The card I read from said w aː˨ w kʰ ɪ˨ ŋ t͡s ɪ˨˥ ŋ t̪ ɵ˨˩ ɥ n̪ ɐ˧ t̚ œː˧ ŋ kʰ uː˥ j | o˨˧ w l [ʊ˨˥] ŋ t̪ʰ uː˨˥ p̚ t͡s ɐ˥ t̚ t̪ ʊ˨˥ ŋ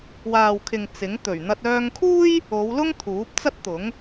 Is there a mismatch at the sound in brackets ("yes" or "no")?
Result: yes